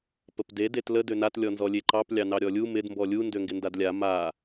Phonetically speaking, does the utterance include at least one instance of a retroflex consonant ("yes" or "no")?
no